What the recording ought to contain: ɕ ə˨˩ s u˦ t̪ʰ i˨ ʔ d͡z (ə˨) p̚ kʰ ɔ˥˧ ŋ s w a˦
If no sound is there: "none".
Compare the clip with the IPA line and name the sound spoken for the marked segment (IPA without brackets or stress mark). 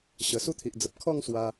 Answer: ə˨